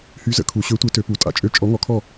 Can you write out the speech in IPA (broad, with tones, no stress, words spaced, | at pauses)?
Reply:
hy˨˥ zə̰˧kʰu˩˧ ɕø˨˥tʷe˨˥tø˩˧ pu˩˧˩tʼa̰˥˧t͡ʃʼø˥˩ t͡ʃʼɔ˨˥ŋɔ˩˧kʰɔ˥˩